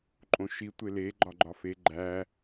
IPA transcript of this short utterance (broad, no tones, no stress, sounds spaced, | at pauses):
ǃʼ õ ʃ i tʷ e l e ɡ͡ǃ ɒ ɡ͡ǃ ɒ f e ɡ͡ǃ æ